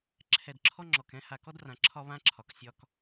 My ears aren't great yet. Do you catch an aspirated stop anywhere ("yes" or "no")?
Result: yes